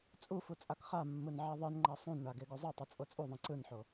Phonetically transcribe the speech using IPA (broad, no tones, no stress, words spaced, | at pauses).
t͡sʼufu t͡sʼakχamːɯn ʕeðˤɯnŋ͡ǃa sˤũnɳa ɡeɡuzˤɯtˤɯ t͡sʼot͡sʼuðˤĩ ǀɯnħo